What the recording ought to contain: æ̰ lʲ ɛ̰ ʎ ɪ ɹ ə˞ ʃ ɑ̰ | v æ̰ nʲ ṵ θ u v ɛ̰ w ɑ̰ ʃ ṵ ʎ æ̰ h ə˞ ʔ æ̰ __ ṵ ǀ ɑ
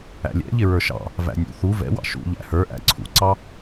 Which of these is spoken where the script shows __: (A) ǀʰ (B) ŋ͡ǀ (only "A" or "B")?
A